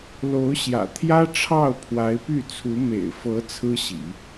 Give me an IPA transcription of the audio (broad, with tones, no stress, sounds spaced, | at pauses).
l o˧˥ ʊ̯ ɕ j ä̰˨˩ t̪ʰ j ä˥ ʈ͡ʂʰ ɑ˥˩ ʊ̯ pʰ w a˧˥ ɪ̯ p y˥˩ t͡sʰ u˧˥ m ḛ˨˩ ɪ̯ f ɤ˧˥ t͡sʰ ɹ̩˥ ɕ ḭ˨˩˦